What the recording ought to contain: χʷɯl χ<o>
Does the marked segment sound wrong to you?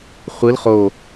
no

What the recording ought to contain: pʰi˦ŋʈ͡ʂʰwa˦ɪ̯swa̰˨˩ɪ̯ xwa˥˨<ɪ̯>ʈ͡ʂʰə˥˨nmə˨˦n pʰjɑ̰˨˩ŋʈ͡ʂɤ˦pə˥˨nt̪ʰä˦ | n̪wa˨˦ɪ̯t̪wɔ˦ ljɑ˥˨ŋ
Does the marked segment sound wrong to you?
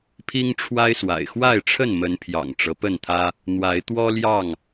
no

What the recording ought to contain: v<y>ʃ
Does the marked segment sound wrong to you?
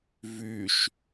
no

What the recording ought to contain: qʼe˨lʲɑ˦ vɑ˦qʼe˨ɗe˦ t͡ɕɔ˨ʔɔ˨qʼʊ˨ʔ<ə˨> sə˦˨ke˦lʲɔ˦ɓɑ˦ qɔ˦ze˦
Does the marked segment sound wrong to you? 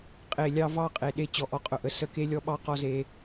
no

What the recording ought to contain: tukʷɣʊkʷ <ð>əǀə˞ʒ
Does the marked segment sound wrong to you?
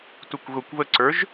yes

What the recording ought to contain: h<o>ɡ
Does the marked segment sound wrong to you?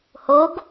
no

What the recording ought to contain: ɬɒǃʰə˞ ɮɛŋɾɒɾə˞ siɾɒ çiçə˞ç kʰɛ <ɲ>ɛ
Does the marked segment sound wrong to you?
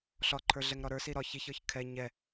no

